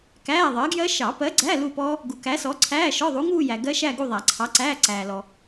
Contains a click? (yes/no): yes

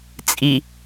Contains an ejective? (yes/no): yes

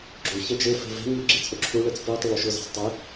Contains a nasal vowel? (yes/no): no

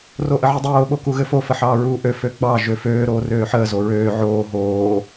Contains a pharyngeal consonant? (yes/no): yes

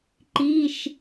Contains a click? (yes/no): yes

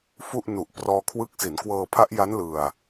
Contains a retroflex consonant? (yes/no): no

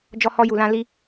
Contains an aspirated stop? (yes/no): no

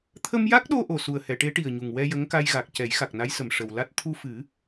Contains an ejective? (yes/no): no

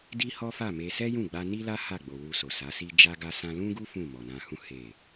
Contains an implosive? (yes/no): no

